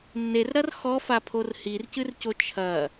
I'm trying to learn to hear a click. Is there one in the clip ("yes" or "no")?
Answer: no